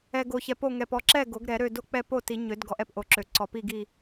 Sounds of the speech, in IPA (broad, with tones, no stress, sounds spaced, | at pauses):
ɛ˨ ɡ o˨ ç ɛ˨ p o˥˨ ŋ ɛ˨ p ɔ˥˨ ǁ ɛ˥˨ ɡ o˨˩˦ ɡ ɾ ɛ˨˩˦ ɾ ø˥˨ d o˥˨ k͡p ɛ˥˨ p o˥˨ t i˨˩˦ ɲ ø˨˩˦ d ɡ ɔ˨˩˦ ʔ ɛ˥˨ p ʔ o˨˩˦ ǁ ø˨˩˦ ǀ ɔ˨˩˦ p i˥˨ ɡ i˥˨